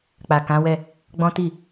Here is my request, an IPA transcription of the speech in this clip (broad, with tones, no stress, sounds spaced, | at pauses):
k͡p a˨ k ã˨˦ w ɛ˦˨ | ɡ͡b ɔ̃˦ t i˦˨